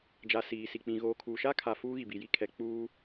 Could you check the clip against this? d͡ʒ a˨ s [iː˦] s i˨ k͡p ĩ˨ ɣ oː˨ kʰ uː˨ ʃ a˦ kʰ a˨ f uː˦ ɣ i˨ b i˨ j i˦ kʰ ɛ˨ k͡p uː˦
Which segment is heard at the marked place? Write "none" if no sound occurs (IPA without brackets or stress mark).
iː˨